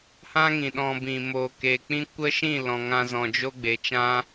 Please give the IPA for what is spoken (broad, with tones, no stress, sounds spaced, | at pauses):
h ã˦ ŋ ĩ˨ ɗ ɔ̃˧ b ĩ˨ m o˨ k e˨ k͡p ĩ˦ kʷ ə˦ ʃ ĩ˦˨ l ɔ̃˨ ŋ ã˧ z ɔ̃˨ d͡ʒ o˦ ɡ͡b e˨ t͡ʃ ã˦